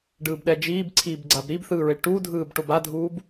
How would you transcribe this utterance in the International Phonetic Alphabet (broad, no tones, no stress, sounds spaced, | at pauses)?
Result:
ɖ ɯː b ɗ ɛ d͡ʒ iː b ǀʰ iː b ɡ͡ǀ a b ɾ i b θ ɯː ɹ e ʈ u dʱ ɯː b ʈ o b a dʱ uː b